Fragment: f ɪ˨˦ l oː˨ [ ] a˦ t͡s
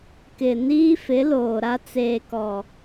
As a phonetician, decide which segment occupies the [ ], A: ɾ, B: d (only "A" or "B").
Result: A